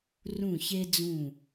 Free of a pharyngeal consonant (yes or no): yes